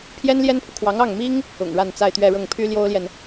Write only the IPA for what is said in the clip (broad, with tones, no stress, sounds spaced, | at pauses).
pʰ j ɛ˥ n l j ɛ˥ n pʰ u˨ kʰ w ɑ˧˥ ŋ ɑ˥˩ ŋ m i˥ ŋ | ʊ̰˨˩ ŋ ɻ a˥˧ n t͡s a˥˧ ɪ̯ t̪ ɥ ɛ˥˧ ɻ ɤ˥˩ ŋ pʰ y˥ l j o˥ ʊ̯ l j ɛ˨ n